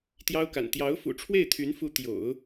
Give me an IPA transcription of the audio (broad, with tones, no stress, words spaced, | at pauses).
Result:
t̪jɑ˥ʊ̯ka̰˨˩n t̪jɑ˧˥ʊ̯fṵ˨˩ʈ͡ʂʰwe˥˩ɪ̯ t̪ʰy˧˥nfu˧˥ t̪jo̰˨˩˦ʊ̯